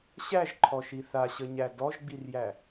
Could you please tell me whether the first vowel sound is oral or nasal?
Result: oral